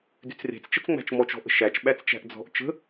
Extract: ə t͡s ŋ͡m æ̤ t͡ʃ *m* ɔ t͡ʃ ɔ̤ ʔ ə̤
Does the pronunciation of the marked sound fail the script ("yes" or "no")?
no